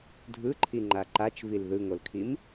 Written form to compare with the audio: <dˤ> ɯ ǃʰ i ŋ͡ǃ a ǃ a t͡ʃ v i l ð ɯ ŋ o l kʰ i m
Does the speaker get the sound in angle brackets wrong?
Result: yes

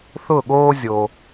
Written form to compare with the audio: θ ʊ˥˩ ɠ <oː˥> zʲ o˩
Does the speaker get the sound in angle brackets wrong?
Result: no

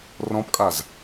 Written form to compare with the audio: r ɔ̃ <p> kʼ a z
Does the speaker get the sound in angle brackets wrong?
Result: no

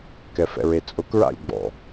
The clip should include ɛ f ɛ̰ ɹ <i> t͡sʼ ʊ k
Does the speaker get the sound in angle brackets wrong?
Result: yes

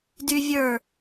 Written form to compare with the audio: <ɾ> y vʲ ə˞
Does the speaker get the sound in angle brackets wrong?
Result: yes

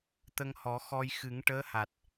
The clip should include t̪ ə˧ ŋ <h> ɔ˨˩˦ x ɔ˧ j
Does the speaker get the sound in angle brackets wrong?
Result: no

